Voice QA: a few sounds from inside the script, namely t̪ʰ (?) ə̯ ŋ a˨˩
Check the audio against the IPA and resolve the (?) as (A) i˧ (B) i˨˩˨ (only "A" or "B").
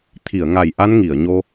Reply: B